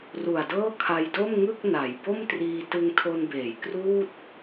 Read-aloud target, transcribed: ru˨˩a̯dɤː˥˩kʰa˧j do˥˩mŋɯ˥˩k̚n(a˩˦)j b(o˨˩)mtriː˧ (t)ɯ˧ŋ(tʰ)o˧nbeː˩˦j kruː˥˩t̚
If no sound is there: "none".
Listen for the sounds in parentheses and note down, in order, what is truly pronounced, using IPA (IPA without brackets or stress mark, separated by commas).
a˩˦, o˥˩, t, tʰ